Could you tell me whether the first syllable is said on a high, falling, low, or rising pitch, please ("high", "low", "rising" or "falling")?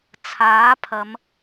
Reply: rising